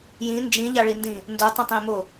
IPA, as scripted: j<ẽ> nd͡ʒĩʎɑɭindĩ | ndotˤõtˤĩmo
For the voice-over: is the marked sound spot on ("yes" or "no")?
no